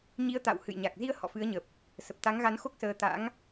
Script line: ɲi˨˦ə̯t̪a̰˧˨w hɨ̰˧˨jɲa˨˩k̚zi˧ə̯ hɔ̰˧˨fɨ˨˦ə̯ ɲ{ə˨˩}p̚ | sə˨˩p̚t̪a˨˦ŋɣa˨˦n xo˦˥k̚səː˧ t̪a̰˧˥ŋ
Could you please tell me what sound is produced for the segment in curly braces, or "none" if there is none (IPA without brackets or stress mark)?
ə˨˩